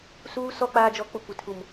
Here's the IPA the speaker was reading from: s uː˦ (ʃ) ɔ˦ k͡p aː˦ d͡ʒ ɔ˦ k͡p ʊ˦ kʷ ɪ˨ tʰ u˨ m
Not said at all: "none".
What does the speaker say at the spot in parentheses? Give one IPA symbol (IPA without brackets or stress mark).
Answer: s